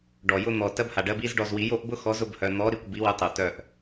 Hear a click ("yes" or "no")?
no